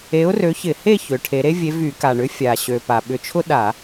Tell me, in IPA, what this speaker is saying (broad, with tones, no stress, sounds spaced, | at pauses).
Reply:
e˨˥ ʊ̯ r ø˨˥ ç ɪ˧˩˧ h e˥˨ ç ø˩˧ ʈʰ e˩˧ ɾ e˥ vʲ e˨˥ v y˧˩˧ k a˨˩ ɳ ʏ˨˥ fʲ a˨˩ ɕ ø˨˩ p a˨˩ ɓ ʏ˧˩˧ t͡ʃʰ ʊ˥ ɗ a˧˩˧